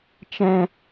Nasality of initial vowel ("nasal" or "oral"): nasal